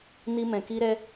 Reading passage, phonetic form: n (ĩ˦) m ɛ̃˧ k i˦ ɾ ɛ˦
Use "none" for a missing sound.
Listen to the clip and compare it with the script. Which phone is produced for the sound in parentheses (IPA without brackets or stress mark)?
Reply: i˦